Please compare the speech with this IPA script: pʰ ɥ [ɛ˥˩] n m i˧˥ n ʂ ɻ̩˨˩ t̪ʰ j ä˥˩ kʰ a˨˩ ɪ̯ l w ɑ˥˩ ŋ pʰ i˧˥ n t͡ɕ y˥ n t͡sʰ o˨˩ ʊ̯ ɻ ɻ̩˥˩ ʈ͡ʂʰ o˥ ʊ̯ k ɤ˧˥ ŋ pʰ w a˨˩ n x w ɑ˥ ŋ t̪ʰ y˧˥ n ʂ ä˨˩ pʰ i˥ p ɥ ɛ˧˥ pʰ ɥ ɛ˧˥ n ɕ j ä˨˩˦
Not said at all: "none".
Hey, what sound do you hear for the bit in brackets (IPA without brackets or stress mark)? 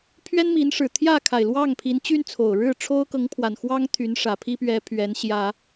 ɛ˥